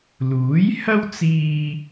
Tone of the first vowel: rising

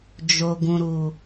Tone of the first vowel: low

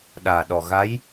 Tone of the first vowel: low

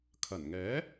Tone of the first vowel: low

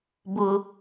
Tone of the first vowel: high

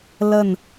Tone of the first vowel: falling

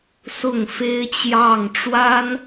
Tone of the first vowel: falling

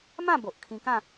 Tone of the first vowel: falling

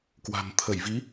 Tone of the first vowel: low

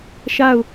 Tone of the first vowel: falling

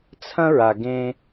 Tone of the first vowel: high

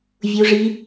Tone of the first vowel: high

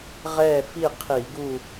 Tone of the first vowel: falling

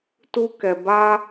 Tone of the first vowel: high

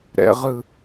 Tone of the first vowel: high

